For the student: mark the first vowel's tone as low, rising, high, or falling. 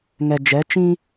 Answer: low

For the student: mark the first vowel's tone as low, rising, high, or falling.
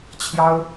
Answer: high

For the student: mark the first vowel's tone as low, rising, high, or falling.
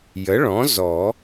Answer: rising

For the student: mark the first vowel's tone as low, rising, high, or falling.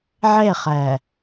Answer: falling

